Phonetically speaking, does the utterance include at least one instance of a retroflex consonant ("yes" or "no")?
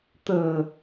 no